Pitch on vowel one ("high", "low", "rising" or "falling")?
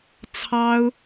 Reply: high